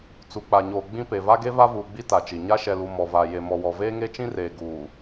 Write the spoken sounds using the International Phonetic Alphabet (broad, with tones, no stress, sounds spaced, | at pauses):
t͡s u˨ k͡p a˨ ɲ oː˨ ɡ͡b ĩ˦ p e˨ v a˦ ɡ e˦ v a˦ v uː˨ ɡ͡b i˦ t a˨ t͡ʃ i˨ ɲ a˦ ʃ ɛ˨ l u˨ m ɔ˨ v a˨ j e˨ m ɔ˨ w ɔ˨ v eː˦ ŋ e˦ t͡ʃ ĩ˦ r eː˨ ɡ uː˨